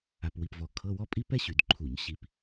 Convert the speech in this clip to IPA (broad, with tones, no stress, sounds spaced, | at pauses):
a˧ p w i˧ p v ɔ˧ kʰ ɤ˧˥˧ w ɔ˥ pʼ i˥ p ɛ˥ ɕ y˧˩˧ d ǃʰ u˧˩˧ ɲ ɕ i˧ p